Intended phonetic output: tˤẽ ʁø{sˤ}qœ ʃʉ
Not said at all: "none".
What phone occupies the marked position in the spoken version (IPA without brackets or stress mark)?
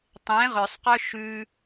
sˤ